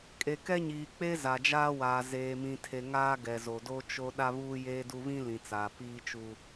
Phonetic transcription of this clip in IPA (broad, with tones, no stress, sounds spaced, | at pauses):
kʼ e˨ k ɛ˦ ɲ iː˨ k͡p e˦ z a˨ d͡ʒ aː˦ w aː˨ z eː˨ m ĩ˨ tʰ e˨ ŋ aː˦ ɡ ɛ˨ z o˨ d o˦ t͡ʃ o˦ ɗ a˦ β uː˦ j eː˦ d u˦ β ĩ˦ l ĩ˨ t͡s aː˨ p iː˦ t͡ʃ u˦